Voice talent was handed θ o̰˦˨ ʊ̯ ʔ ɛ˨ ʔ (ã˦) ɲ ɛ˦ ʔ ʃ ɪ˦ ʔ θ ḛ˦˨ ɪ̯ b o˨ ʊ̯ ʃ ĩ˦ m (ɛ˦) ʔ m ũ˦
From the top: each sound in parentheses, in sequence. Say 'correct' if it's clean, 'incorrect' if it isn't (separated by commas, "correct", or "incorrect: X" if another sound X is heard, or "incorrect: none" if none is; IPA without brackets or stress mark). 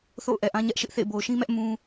correct, correct